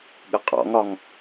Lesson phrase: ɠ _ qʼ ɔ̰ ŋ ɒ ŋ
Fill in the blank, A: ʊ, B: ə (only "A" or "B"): B